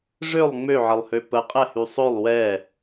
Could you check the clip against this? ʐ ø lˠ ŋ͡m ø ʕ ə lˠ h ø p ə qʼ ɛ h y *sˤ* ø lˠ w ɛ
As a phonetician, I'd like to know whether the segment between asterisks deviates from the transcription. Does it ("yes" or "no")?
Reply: no